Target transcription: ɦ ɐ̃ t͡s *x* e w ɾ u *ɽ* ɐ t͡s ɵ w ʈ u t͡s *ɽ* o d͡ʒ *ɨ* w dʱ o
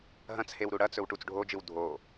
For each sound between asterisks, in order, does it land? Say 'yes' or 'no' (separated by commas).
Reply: no, yes, no, yes